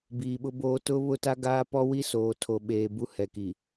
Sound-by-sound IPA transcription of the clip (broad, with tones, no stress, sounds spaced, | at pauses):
b iː˨ ɓ ʊ˦ b oː˦ t ʊ˦ β ʊ˦ t a˦ ɡ aː˦ p ɔ˦ w i˦ s oː˨ tʰ o˨ ɓ eː˨ b u˦ h ɛ˨ k i˨